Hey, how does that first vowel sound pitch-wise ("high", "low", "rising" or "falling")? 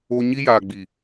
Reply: high